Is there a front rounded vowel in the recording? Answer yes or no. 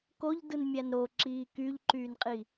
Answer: yes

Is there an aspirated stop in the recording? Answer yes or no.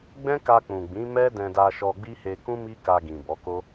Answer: no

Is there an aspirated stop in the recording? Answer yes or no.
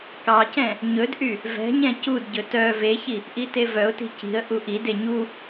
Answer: no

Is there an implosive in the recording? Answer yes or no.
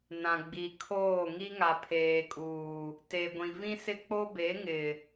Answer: no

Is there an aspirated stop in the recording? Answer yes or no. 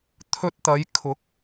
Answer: yes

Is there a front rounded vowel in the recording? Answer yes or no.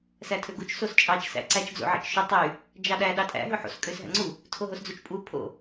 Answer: yes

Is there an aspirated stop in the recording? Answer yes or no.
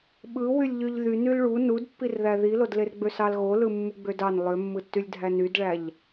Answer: no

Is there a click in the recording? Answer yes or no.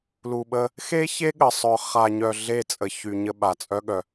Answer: no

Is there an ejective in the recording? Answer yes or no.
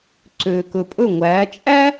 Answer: yes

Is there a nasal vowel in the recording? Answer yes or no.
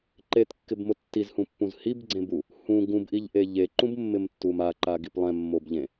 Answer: yes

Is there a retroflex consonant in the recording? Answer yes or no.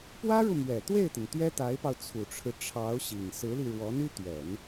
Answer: yes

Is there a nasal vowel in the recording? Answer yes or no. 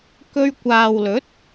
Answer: no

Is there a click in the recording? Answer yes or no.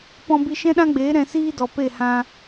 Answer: no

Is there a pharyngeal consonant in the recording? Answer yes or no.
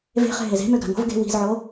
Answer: yes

